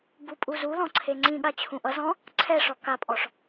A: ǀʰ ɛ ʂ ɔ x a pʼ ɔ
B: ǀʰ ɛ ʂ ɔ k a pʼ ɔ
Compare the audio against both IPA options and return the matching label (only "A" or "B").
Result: B